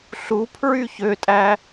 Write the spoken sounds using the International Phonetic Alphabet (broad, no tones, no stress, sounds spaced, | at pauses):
ɬ u pʰ ɹ y ç ø tʼ æ